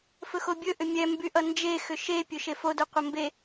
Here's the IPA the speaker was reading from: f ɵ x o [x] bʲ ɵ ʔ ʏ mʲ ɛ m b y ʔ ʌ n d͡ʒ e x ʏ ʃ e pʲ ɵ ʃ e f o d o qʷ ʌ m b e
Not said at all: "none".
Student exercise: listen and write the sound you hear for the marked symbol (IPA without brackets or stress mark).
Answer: none